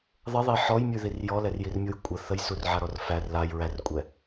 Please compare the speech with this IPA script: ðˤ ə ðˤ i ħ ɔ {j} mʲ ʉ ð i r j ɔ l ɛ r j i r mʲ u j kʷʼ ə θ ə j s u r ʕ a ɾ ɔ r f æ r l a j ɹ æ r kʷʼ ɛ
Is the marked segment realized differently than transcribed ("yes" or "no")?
no